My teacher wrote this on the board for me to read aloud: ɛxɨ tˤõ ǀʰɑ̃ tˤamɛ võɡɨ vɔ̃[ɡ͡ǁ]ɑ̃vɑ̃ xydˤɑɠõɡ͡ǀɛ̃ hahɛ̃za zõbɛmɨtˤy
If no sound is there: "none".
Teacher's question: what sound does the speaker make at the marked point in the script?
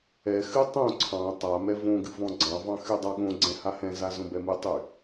ɡ͡ǀ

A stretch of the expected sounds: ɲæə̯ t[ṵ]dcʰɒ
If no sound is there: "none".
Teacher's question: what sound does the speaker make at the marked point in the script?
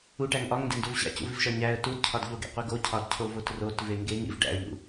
u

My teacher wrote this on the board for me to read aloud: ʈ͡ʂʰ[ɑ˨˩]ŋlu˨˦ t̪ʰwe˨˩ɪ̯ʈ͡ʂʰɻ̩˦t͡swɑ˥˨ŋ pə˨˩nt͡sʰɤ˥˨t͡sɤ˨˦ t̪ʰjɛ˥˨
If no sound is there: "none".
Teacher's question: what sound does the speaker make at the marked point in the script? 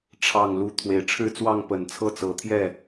ɑ˨˩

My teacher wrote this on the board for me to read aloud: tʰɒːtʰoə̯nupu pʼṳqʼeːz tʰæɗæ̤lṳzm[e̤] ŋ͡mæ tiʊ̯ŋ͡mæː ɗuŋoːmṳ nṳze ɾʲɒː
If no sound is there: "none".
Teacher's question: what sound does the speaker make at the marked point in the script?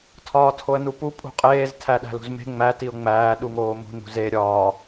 e̤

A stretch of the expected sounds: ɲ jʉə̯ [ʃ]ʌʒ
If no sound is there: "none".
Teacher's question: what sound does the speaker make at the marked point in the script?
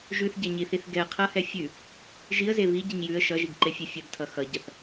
ʃ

